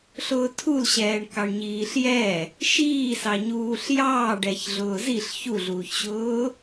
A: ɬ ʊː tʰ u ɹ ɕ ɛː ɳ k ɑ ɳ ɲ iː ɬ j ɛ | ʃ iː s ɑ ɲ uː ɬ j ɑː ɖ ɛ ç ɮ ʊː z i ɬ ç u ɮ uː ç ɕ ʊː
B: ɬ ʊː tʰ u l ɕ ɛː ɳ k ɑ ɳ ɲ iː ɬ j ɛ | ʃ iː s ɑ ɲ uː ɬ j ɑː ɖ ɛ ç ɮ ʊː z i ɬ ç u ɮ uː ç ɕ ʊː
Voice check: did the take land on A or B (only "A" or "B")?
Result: B